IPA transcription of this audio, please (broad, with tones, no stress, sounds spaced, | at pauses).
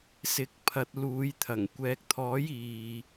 s ɪ˨˥ k̚ pʰ ɐ˨ t̚ l uː˨˧ j t̪ʰ ɐ˨˩ ŋ kʷ ɛː˨ k̚ t̪ʰ ɔː˨˥ j iː˨